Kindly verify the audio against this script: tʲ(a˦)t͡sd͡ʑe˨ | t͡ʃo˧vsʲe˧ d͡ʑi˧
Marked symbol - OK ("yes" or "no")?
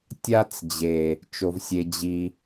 yes